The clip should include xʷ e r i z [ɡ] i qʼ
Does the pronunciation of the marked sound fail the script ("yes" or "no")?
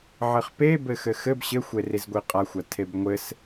yes